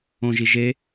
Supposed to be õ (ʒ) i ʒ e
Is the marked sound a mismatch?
no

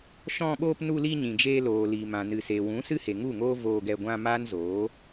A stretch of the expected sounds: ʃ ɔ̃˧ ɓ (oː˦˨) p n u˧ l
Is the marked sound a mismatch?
yes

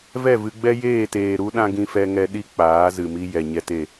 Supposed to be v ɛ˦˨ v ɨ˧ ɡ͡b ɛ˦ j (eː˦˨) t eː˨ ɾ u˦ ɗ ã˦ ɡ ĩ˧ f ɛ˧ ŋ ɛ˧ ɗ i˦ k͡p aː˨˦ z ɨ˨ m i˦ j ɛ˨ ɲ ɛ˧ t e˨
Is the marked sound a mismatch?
no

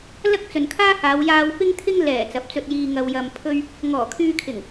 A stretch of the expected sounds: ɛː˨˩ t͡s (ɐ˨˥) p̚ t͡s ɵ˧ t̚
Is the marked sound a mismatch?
no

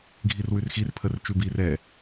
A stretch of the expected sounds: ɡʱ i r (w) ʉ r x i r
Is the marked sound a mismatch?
no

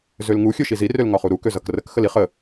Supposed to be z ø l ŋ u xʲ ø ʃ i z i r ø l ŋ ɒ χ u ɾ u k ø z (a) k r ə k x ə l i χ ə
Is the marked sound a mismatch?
yes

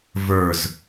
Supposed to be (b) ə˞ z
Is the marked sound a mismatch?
yes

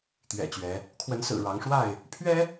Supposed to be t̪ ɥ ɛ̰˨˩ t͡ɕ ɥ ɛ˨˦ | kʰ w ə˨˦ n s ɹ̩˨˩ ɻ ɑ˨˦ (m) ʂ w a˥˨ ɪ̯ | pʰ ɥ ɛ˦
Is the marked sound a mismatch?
yes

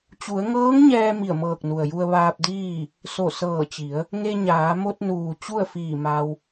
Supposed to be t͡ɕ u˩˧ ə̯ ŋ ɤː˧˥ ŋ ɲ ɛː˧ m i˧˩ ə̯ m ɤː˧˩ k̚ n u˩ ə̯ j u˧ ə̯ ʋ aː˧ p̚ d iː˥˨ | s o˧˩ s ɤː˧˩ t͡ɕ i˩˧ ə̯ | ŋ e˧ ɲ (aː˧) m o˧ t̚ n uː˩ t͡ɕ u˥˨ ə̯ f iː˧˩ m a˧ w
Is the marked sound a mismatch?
yes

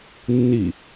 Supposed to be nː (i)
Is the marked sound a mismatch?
no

